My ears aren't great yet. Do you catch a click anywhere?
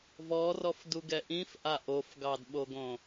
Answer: no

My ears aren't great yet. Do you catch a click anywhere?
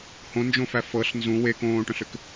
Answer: no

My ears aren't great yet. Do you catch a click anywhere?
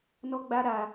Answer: no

